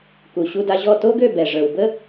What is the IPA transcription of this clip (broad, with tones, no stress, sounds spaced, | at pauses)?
k u˩ ɕ u˧ d a˧ ʑ ɔ˥˩ t o˥ ɡ ø˥˩ b ɛ˩ ʐ ə˞˩ w b ə˥